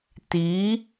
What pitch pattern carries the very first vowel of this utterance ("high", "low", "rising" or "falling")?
rising